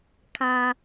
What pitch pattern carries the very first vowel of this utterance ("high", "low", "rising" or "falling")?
low